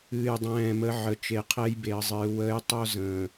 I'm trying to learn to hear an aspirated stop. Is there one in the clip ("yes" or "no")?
yes